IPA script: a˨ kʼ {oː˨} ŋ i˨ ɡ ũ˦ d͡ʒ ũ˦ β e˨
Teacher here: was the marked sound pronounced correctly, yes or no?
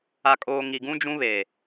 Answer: yes